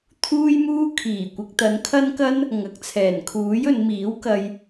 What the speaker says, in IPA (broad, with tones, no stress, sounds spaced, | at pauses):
t̪ʰ uː˥ j m uː˥ kʰ iː˨˩ kʷ ɪ˨ k̚ t̪ ɐ˨˧ n kʰ ɐ˥ n k ɐ˥ n | ŋ ɐ˨ k̚ t͡sʰ ɛː˨˩ n kʰ uː˨˥ j ɵ˨˧ n m iː˨˥ w k ɐ˧ j